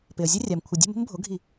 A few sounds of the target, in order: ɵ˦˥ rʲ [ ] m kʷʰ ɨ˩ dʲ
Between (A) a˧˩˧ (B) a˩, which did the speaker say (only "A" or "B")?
B